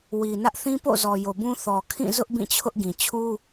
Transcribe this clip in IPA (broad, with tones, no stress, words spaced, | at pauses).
wi˨ nä˦ʔ θĩ˦po̰˦˨zɔ˨ jo˨bũ˦ θɔ˨kʰĩ˦˨ zʊ˦ʔ bĩ˦˨t͡ɕʰʊ˦ʔɡĩ˨ t͡ɕʰu˦